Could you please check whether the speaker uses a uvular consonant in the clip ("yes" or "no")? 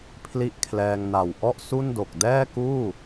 no